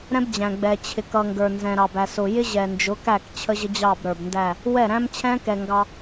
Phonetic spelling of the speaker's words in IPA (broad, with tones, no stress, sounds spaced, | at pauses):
ɾ ɛ̃˦ b d͡ʑ æ̃˨ ɡ͡b ɛ˨ t͡ɕʰ ɪ˨ k ʌ˨ ŋ ɡ ə˞˨ n z ɛ̃˨ ɾ ɑ˨ b æ˨ s ʊ˨ j ɪ˦ ʑ ɛ˨ n d͡ʒ ʊ˨˦ k æ˦˨ k t͡ɕʰ ə˦ ʑ ə˦ d͡ʑ ɑ˦˨ b ɾ ə˞˨ b n d æ˦˨ | w ɛ˦˨ ɾ æ̃˦ m t͡ɕʰ ɛ̃˦ k ɛ˨ ŋ ɡ ɑ˦